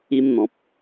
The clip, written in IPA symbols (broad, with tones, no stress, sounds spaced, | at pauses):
i˧ m n̪ ɔ̃˨ p̚